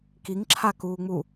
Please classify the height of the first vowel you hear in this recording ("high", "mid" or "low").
high